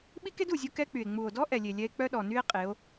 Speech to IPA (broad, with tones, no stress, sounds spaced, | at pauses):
ɓ i˦ k e˦ d u˨ zʲ u˧ k ɛ˦ k͡p y˨ e̯ ŋ͡m u˨ o̯ d ɔ˦ ʔ ɛ˨ lʲ e˨ lʲ ɛ˧ e̯ k͡p œ˦ ɗ ɔ˨ n y˦ e̯ qʼ e˨˦ o̯